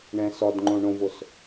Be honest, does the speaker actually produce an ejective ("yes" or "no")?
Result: no